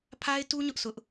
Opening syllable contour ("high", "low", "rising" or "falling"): high